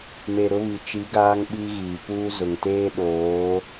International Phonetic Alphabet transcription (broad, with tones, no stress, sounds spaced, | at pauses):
m e˨ ɾ ʊ˦ β i˨ t͡ʃ i˨˦ ɡ aː˦ ŋ ɓ i˦ ɣ iː˨ p uː˦ z ʊ˨ ŋ t eː˦ ɗ oː˨˦